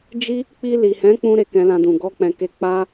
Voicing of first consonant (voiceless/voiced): voiced